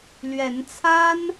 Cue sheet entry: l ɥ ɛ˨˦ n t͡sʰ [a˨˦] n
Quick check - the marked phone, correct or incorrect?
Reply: incorrect